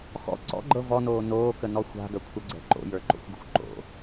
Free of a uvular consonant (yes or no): yes